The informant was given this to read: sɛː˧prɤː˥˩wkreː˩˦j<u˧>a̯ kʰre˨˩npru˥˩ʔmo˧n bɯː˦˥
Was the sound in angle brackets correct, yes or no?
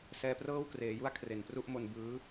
no